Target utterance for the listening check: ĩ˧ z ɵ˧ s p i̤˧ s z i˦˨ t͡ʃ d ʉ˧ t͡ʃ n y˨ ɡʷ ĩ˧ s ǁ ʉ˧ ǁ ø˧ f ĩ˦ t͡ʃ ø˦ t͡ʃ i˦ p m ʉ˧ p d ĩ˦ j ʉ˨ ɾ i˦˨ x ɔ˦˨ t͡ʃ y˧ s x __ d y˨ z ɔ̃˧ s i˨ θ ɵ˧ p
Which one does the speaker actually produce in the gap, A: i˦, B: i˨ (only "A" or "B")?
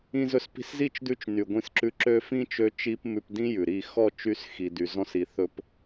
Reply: B